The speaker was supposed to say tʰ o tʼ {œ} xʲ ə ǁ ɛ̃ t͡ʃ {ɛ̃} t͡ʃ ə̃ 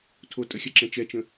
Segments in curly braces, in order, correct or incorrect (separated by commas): incorrect, incorrect